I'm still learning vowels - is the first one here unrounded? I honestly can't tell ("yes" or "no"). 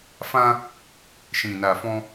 yes